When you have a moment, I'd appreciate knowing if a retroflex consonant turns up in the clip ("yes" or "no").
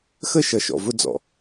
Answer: no